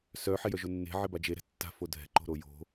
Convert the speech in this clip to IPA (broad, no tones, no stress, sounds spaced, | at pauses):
s œ ħ e j œ ʒ o nː e̤ ʕ ɪ b a d͡ʒ e ɾ ɛ̤ tː a̤ f o dʱ ɛ̤ ǃ o̤ ɾ o j o̤